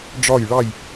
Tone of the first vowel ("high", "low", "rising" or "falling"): falling